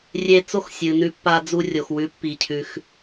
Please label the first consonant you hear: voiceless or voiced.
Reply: voiced